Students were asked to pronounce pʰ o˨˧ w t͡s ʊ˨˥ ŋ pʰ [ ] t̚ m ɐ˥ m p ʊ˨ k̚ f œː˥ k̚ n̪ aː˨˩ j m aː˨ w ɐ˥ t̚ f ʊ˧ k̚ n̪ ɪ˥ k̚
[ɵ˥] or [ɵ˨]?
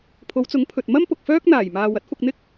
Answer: ɵ˨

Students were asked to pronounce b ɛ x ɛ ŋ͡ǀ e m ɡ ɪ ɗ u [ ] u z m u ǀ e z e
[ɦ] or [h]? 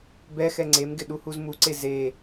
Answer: h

